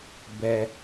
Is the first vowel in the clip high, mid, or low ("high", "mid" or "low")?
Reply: mid